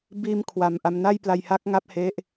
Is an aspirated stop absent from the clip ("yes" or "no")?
no